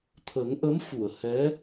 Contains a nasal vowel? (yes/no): no